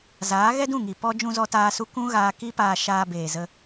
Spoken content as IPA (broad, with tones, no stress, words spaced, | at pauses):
zaː˨˦ ɣɛ˦dũ˦˨ŋi˨ pɔ˦ d͡ʒũ˧zɔ˧taː˧su˧ kũ˦ɣaː˧ ki˦paː˧ ʃaː˧ beː˨zə˧